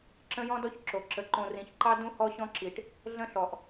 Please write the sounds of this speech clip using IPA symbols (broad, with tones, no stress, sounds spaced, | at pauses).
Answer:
ǁ ə̃˦ j ɔ̃˦ d ɔ˦ ç ǁ o˨ ǁ ə˨ ǃ õ˨ r ĩ˨ ç ǃ ɑ˦ d ũ˦ h ɔ˦ ɕ ɔ̃˦ ǁ i˨ ʈ | ɮ ə̃˦ ɬ ɔ˨ ʔ